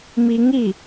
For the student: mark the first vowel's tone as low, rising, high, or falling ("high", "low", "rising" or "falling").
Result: rising